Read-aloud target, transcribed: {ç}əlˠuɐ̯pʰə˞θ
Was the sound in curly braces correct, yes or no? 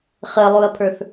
no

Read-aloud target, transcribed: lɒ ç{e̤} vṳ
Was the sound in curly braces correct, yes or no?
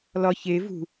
no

